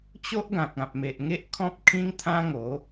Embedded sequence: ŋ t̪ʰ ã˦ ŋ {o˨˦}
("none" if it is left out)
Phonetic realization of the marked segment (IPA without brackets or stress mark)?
o˨˦